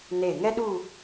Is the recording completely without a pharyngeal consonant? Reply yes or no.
yes